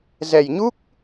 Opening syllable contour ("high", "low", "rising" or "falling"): low